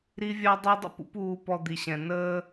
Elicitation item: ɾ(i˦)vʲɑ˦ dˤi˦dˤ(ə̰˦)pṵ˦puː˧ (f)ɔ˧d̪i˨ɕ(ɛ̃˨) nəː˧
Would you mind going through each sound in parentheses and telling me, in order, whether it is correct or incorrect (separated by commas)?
correct, correct, incorrect, correct